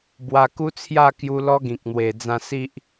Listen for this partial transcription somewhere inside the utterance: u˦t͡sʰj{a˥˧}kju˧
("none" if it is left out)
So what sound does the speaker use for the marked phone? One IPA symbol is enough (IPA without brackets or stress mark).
a˥˧